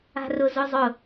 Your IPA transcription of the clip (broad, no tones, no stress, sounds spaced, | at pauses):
a̤ r ʊ z ʊ zˤ ʊ